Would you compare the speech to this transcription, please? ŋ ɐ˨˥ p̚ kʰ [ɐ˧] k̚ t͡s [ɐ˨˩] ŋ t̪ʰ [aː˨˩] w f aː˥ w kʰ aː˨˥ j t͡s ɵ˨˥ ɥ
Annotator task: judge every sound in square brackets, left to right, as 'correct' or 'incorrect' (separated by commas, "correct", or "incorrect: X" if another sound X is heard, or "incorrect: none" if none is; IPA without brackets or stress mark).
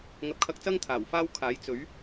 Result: correct, incorrect: ɐ˥, correct